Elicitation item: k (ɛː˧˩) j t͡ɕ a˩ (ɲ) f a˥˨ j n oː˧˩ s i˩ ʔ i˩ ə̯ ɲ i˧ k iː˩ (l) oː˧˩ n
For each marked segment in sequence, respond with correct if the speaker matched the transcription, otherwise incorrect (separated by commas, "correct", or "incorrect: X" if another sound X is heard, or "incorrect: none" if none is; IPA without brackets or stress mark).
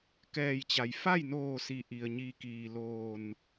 correct, incorrect: j, correct